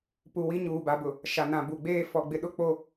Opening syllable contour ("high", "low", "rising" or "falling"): low